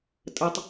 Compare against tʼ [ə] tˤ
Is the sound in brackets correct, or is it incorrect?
correct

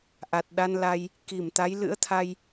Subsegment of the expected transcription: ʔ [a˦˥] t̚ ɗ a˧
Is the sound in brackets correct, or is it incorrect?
incorrect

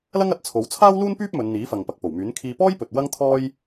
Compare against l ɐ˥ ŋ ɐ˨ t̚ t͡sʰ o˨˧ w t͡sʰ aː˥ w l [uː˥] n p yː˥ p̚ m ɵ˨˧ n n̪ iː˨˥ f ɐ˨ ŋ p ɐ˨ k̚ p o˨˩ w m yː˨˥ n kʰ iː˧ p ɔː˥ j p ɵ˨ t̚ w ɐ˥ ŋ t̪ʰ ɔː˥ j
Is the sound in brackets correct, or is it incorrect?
correct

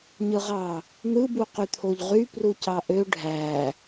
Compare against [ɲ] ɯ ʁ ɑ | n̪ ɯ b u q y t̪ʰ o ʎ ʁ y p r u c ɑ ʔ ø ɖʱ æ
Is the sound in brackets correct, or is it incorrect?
correct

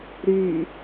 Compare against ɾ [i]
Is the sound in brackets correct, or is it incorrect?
incorrect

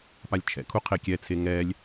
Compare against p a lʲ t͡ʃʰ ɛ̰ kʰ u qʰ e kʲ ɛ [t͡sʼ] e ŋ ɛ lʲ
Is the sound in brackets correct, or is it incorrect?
incorrect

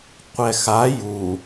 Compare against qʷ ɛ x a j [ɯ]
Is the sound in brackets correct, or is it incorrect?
incorrect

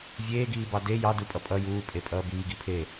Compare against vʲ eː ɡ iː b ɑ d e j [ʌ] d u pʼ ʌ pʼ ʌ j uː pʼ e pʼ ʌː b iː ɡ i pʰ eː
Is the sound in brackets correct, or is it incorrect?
incorrect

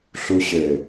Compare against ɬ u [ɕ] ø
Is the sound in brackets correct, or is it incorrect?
correct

